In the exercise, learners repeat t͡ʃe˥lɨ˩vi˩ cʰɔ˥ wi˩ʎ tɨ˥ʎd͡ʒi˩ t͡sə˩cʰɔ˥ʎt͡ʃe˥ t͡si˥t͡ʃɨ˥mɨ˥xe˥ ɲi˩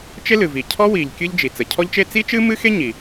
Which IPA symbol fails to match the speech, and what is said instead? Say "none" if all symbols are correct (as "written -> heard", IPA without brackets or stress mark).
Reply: t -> kʲ